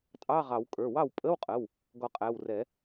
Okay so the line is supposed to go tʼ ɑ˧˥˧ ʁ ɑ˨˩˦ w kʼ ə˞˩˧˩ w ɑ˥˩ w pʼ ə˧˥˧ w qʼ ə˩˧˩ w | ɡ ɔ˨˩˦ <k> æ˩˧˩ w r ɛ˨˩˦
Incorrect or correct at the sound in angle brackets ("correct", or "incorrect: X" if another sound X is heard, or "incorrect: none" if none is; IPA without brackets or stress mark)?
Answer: incorrect: qʼ